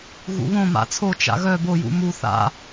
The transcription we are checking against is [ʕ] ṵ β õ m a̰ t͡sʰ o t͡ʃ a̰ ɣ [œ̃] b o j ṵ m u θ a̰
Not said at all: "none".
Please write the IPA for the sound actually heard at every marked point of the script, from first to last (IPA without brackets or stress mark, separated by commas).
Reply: ɣ, œ